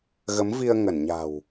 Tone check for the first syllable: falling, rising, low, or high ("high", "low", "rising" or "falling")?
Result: rising